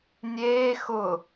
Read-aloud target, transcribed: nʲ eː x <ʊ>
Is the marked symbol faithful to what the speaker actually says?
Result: yes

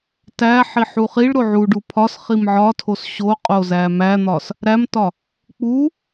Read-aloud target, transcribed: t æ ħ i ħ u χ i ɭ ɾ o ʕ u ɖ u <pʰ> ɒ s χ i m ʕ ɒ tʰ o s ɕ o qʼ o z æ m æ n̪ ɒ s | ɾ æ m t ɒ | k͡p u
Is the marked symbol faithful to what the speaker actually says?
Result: yes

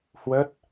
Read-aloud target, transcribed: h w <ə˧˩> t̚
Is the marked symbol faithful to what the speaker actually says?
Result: no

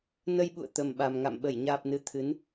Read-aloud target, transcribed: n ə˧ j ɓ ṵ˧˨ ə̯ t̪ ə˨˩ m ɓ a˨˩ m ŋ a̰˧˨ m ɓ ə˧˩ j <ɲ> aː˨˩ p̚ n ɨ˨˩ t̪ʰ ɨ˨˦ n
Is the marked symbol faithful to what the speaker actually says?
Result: yes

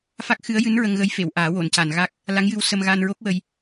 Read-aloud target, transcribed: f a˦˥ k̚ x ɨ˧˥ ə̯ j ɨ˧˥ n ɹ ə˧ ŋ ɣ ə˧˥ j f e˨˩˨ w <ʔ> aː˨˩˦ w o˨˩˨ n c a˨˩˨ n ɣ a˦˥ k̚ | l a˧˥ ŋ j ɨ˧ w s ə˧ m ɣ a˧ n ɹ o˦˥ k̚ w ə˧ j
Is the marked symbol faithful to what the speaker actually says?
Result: yes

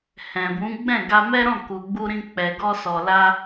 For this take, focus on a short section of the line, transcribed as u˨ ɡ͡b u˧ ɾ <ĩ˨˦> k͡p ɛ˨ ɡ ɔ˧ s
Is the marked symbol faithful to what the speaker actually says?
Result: no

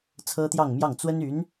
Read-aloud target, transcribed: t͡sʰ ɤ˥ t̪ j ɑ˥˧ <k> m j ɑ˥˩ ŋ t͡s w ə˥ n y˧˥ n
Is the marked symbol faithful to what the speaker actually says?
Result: no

